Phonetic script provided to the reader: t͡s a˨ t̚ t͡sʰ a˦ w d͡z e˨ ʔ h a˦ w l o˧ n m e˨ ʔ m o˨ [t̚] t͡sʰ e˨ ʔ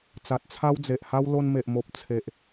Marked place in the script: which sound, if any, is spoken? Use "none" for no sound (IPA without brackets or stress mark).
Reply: p̚